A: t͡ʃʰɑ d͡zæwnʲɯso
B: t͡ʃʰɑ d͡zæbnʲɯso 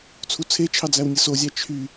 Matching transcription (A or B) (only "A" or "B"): A